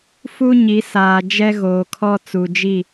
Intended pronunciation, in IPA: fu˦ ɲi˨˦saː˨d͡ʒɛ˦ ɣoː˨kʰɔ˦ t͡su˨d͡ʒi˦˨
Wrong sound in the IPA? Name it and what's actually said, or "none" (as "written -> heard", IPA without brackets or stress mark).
none